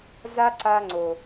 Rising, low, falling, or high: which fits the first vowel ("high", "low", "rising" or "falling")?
high